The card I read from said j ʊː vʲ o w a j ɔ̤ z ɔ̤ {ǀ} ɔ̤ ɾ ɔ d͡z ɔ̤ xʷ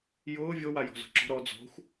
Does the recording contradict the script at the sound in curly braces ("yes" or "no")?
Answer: yes